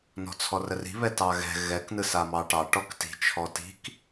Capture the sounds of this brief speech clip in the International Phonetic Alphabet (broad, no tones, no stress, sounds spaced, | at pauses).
n ɔ̤ t͡sʰ ɔ r ə r i̤ β ɛ t ɑ ɣ ɛ̤ ɣ ɛ k n ɯ s a m ɑ ʈ ɑ ʈ ɔ k t i̤ t͡ʃʰ ɔ t i̤ k